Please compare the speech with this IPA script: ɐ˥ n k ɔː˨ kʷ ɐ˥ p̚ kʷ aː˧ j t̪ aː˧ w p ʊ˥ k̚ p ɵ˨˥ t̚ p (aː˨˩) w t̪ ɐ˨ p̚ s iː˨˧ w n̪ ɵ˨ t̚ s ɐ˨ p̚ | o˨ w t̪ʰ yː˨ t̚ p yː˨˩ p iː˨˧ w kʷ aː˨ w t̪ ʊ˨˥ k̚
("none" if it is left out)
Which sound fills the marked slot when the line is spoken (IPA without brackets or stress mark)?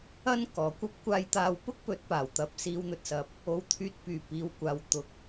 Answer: aː˨˩